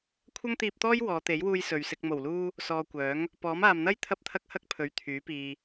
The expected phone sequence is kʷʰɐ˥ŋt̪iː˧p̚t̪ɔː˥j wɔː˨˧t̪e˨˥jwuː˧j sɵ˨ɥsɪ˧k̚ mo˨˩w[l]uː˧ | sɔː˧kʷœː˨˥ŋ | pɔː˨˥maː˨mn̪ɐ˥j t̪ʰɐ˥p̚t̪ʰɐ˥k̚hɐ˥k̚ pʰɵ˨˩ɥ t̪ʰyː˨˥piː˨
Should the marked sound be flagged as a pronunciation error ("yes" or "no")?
no